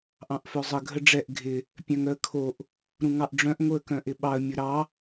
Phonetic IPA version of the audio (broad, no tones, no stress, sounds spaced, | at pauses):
ʔ ɑ̃ ʔ f œ zˤ ə ɡʱ ə ɖ͡ʐ ɛ ʔ ɡʱ ɪ | pʲ œ̃ ŋ œ ə̯ kʰ o ʔ | ɾ ũ ŋ ɑ ʔ ɖ͡ʐ œ̃ ʔ ŋ o ə̯ k œ̃ ʔ ɪ ɓ ɑ ə̯ mʲ ʊ ɾ ɑ